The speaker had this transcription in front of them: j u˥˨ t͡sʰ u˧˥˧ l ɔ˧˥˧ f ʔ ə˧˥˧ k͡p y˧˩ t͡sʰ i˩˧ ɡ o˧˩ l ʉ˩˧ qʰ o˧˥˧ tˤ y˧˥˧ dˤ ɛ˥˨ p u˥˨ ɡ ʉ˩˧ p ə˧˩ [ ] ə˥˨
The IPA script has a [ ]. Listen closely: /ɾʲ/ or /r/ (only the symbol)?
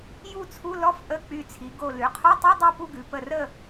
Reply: r